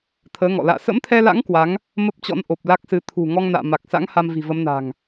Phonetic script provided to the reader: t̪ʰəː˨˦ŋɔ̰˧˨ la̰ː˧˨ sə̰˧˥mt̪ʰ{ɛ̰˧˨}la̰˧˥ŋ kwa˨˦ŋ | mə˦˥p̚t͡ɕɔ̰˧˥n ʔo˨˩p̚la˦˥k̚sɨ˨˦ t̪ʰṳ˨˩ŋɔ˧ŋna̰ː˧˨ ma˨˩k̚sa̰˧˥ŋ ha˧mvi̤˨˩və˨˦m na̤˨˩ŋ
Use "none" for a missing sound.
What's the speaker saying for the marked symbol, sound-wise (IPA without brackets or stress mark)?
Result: ɛ˧